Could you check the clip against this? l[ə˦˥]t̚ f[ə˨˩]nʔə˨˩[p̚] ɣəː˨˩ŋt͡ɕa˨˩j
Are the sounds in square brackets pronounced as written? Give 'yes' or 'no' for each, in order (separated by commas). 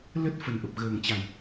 yes, yes, yes